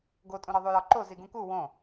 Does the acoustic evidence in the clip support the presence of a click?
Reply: yes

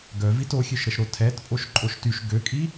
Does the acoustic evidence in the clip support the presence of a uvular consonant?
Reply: no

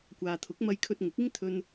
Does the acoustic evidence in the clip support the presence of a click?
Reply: no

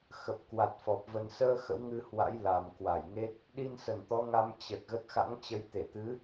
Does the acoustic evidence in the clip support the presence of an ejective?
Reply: no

